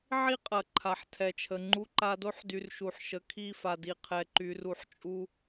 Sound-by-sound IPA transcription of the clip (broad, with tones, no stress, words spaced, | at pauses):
ʕi˦qʼɐ˨ ǃʰa˨ħtʰɛ˨t͡ʃʰə˨ ŋ͡ǃu˦ ǃa˦ do˦ħdy˨r ʃu˨ħʃə˨kʰi˦˨fa˨ di˨qʰɛ˨ ǃy˨ru˨˦ħ t͡ʃʼu˦